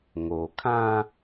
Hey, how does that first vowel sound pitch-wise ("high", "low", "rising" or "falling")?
low